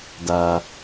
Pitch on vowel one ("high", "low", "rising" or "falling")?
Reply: low